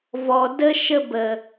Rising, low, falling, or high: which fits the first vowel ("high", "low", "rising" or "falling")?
low